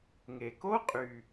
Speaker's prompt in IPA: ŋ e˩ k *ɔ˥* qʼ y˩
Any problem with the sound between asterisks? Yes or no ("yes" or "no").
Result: yes